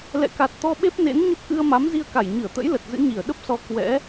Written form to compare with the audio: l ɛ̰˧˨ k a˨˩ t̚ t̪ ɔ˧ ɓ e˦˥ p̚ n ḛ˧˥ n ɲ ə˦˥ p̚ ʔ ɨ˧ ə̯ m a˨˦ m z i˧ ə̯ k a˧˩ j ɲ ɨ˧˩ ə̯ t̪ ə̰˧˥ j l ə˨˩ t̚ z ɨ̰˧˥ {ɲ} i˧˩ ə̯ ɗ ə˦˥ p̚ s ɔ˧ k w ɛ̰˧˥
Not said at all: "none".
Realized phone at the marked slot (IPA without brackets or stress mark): ɲ